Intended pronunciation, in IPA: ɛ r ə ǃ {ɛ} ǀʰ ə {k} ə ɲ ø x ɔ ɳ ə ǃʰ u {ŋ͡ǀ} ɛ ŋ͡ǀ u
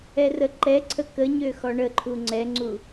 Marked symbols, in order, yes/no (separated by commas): yes, yes, yes